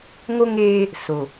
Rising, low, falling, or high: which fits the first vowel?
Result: high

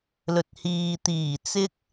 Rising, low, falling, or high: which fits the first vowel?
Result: low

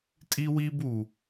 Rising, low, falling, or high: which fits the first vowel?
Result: high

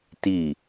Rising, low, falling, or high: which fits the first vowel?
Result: falling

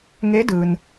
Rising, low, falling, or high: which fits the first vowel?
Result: rising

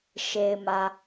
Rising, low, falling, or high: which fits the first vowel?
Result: low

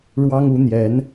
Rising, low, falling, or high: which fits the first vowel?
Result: high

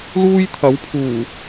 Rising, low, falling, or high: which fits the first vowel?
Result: high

